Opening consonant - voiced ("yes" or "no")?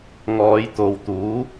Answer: yes